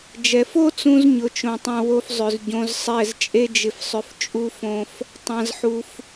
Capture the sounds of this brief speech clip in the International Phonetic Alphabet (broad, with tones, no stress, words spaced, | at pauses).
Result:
d͡ʒɛ˨fo˦t͡sũ˧z ɲʊ˧t͡ʃõ˧tˤũ˧ wo˦f zˤʏ˨z ɟõ˧zsˤɛ˦˨z t͡ʃʼe˦d͡ʒɪ˧fsˤʏ˧f t͡ʃʼu˦fõ˦f | tˤã˦zħu˦f